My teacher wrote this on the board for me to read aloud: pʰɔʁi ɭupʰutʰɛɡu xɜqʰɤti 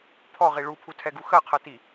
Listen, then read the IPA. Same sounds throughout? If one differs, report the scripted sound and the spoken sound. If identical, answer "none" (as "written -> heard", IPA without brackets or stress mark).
none